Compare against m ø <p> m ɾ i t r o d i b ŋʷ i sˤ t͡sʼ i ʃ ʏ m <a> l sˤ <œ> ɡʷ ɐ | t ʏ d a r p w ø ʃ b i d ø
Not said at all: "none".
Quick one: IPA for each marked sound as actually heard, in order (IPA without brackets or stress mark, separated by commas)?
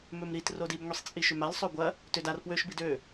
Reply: none, a, ø